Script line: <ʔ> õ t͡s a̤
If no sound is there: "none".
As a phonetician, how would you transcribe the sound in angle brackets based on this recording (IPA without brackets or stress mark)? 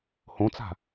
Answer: h